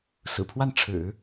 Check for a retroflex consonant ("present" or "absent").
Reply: present